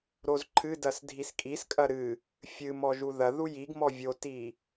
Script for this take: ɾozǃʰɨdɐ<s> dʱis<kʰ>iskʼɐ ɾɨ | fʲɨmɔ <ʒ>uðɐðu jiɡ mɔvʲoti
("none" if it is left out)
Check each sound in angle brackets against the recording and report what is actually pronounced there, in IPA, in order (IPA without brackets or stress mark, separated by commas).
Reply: s, kʼ, ʒ